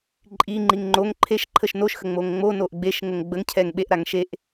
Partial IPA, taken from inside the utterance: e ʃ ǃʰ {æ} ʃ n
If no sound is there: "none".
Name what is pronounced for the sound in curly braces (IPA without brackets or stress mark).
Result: ə